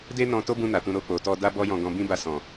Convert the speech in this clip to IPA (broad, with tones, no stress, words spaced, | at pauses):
de˦nɔ̃˧to˦bũ˧ na˨tũ˧ ɾo˧k͡po˨tɔ˧ da˦bɔ˦jɔ̃˧ ɡɔ̃˧bĩ˦ ba˧sɔ̃˨